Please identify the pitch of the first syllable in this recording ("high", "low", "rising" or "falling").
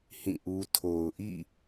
falling